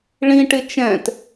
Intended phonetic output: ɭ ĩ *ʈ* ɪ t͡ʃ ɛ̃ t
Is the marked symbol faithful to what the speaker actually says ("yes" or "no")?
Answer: yes